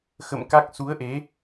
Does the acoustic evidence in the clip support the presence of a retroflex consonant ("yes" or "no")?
no